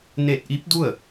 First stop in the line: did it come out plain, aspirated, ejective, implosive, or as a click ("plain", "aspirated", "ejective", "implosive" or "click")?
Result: plain